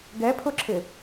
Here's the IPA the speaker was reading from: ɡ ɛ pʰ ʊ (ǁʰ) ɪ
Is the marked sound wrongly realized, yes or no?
no